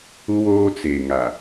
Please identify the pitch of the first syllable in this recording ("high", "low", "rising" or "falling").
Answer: high